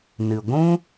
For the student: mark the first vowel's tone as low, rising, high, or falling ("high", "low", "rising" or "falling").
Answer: low